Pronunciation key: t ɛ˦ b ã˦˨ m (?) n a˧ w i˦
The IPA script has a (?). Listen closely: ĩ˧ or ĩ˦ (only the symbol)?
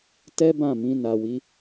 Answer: ĩ˧